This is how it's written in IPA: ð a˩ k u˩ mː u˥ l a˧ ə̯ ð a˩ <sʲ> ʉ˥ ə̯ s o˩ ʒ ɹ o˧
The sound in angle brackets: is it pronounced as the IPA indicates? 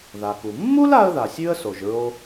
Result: yes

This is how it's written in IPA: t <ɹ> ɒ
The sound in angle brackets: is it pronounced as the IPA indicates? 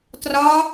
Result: no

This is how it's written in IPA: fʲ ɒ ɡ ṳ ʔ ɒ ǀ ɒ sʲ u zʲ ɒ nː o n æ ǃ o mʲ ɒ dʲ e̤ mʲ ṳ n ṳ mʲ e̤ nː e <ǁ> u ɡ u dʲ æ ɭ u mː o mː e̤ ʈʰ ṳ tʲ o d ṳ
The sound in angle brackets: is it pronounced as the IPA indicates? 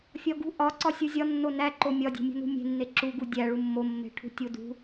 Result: yes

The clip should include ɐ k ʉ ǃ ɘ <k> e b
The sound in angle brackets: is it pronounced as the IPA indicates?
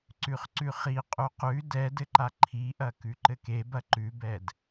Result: yes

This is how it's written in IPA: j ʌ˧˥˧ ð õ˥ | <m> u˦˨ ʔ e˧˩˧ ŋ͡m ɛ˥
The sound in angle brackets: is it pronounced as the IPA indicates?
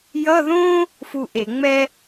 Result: no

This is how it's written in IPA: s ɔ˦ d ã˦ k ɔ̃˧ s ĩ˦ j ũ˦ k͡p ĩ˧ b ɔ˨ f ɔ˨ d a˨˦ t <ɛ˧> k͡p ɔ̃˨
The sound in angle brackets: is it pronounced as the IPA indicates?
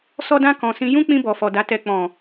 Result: yes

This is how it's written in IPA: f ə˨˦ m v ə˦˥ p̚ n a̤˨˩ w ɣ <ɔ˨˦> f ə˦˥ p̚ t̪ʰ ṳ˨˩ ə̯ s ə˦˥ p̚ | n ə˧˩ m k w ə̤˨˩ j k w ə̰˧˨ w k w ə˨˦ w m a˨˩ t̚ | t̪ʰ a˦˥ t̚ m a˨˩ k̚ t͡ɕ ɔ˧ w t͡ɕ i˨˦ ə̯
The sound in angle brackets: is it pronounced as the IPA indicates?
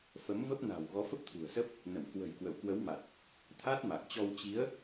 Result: yes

